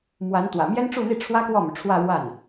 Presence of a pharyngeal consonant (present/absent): absent